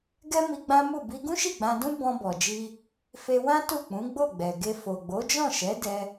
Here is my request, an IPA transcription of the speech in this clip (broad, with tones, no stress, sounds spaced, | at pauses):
ɡ ɛ˦ m i˧ ɡ͡b ã˦ m u˦˨ b i˧ ɡ ũ˦ ʃ i˦˨ ɡ͡b ã˧ d ũ˦ b ɔ̃˧ b ɔ˨ d͡ʒ i˧ | f e˧ w ã˦ t u˦˨ k͡p ũ˨˦ ɡ͡b o˦˨ ɡ͡b ɛ˨ ɡ e˧ f o˨ ɡ͡b o˨˦ d͡ʒ ɔ̃˦˨ ʃ ɛ˨˦ d ɛ˧